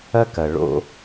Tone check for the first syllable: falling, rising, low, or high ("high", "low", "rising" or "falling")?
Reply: high